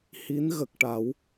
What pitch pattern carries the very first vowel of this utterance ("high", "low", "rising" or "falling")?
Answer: rising